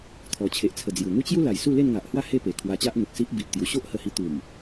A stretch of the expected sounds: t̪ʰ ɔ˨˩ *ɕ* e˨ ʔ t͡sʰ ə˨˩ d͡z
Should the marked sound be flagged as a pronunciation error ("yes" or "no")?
yes